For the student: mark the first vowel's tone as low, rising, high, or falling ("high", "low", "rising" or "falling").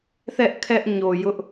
high